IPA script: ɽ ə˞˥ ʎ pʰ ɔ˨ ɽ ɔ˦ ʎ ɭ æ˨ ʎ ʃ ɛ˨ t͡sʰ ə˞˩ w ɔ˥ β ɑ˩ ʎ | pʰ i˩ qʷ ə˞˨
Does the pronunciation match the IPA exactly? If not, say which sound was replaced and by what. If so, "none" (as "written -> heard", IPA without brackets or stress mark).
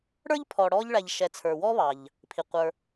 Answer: none